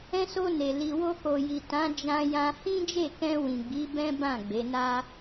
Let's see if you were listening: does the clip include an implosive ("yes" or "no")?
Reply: no